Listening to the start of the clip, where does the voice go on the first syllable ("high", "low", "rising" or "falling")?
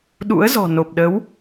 rising